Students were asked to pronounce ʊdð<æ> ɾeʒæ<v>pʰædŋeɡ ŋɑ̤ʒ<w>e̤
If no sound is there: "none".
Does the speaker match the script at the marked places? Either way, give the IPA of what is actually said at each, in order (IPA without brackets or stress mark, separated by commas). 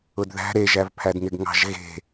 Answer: æ̤, v, ɣ